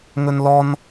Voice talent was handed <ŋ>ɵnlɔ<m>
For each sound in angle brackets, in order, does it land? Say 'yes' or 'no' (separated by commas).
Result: yes, no